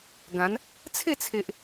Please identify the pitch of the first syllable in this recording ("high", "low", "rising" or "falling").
rising